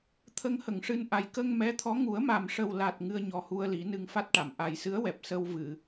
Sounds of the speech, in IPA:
t̪ʰ ə˧ ŋ h ə˨˩˨ ŋ ʂ ɨ˧ n ʔ a˨˩ j k ə˧ ŋ m ɛ˧˥ t̪ʰ ɔ˧˥ ŋ u˨˩˦ ə̯ m a˨˩ m ʂ ə˨˩ w l a˨˩ t̚ ŋ ɨ˧ ə̯ ɲ ɔ˨˩ h u˧ ə̯ l i˨˩˦ n ɨ˧ ŋ f a˦˥ t̚ ʈ a˨˩˨ m ʔ a˨˩ j s ɨ˧˥ ə̯ w ɛ˨˩ p̚ s ə˧ w v ɨ˨˩˨

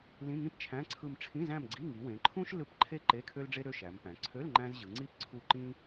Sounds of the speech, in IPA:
l ĩ˧˥˧ ŋ ĩ˥ p t͡ʃʰ æ̃˧˥˧ ǀʰ ɯ˦˨ m ʈ͡ʂʰ ĩ˧˥˧ z æ̃˦˨ m ɡ͡ǀ i˧˥˧ ŋ i˩˧ w ẽ˩˧ ǃʰ ũ˥ ʃ l ɯ˦˨ p ǃʰ e˥ ǃ e˧˥˧ kʰ ø˥ l ɖ͡ʐ e˥ ɾ ø˧˥˧ ʃ æ˩˧ m p æ̃˩˧ ǀʰ ø˧˥˧ l ŋ͡ǃ æ̃˥ z ʑ ɯ˩˧ ŋ͡ǀ i˥ p ǀʰ u˦˨ ǃ ĩ˥

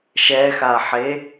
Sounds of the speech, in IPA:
ʃ ɛ x a ħ e

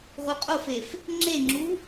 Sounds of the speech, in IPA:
ʁ u qʼ o f e f | ŋ͡ǁ e ŋ͡ǁ u

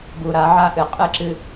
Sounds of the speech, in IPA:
ɡ u˨ ɾ a˨˦ ʕ a˦ ʔ ɨ˨ qʼ ɨ˦ ǁ ɨ˦

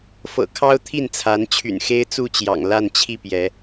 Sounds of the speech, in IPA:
f ɤ̰˨˩ kʰ ɑ˦ ʊ̯ t̪ʰ i˥˨ n t͡sʰ a˨˦ n t͡ɕʰ y̰˨˩ n x e˦ ɪ̯ t͡s u˥˨ t͡ɕ j ɑ̰˨˩ ŋ l a˥˨ n t͡ɕʰ i˥˨ p j ɛ˨˦

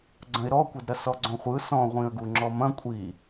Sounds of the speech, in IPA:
ɡ͡ǀ ɐ̃ ɪ̯ ɾ ɔ kʷ ɐ d ɾ ɐ s ɔ ɡ͡ǀ ɔ̃ χʷ ɯ s ɔ̃ ʁʷ ĩ ə̯ ɡ u ŋ͡ǁ ɔ m ɐ̃ kʷʼ i

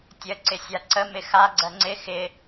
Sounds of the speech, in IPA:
tʲ ə ǀ ɪ sʲ a ǀ ə m ɪ x a ɡ͡ǀ ɜ ŋ͡ǀ ɪ x ɪ

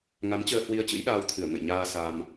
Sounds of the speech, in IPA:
ŋ a˨˦ m t͡ɕ əː˧ h w i˧ ə̯ t͡ɕ ɨ̰˧˥ j ɗ aː˧ w t̪ʰ ɨ˧˩ ə̯ ŋ ə̰˧˨ j ɲ aː˧ s a˧ m

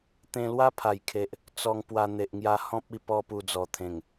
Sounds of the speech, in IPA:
t̪ ẽ˧ l w a˦ pʰ a˨˩ j kʰ e˨ ʔ | t͡s ɔ˧ ŋ p w a˧ n̪ e˨ ʔ ŋ j a˧ h ɔ̃˦ p̚ i˥˧ p ɔ˦ p u˧ d͡z ɔ˨˩ t̪ʰ ẽ˨˩ ŋ

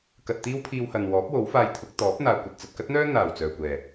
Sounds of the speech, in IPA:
k ɐ˧ t̚ t̪ iː˥ w pʰ iː˧ w h ɐ˨ n w ɔː˨˥ p̚ w o˨˥ w f aː˧ j t̪ʰ ʊ˨˥ k̚ t̪ ɔː˨˥ p̚ n̪ aː˨ kʷ ɐ˨ t̚ t͡s ɐ˨ t̚ k ɐ˥ t̚ n̪ œː˥ n̪ aː˨˩ w t͡s œː˨˩ kʷ ɛː˨˩

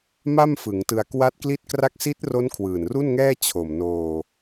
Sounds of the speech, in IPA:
m a˥˩ m f ɯ˩˦ ŋ t ɯ˧ a̯ k w a˦˥ t̚ k l i˥˩ t̚ k r a˥˩ k̚ s i˦˥ t̚ r o˦˥ n kʰ w ɯː˨˩ n r u˥˩ n ŋ ɛː˥˩ t͡ɕʰ o˨˩ m n oː˧

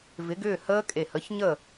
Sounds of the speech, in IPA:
v ɪ˨˥ ɡ ʏː˥˨ h əː˦˥ kʼ e˧˩ h ə˨˥ ç ɲ ə˥˨

